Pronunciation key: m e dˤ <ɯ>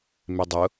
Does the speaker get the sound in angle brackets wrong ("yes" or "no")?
yes